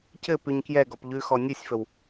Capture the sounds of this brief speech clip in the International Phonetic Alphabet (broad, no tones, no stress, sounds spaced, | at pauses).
c ɘ p ʉ ɲ k j ɛ ɡ ɔ p ʎ ʉ x ɔ nʲ ʉ sʲ f ə w